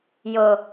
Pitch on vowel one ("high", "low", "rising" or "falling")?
low